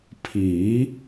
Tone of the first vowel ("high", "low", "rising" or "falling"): rising